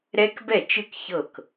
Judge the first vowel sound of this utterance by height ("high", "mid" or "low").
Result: mid